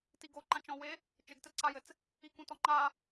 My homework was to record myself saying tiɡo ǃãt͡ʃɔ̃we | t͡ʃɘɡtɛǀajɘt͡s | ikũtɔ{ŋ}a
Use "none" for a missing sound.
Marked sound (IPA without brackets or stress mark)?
ŋ͡ǃ